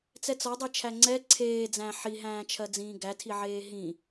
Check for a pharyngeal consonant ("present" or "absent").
present